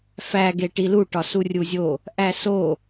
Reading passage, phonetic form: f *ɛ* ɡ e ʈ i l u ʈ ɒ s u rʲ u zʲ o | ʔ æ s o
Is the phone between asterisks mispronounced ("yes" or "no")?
yes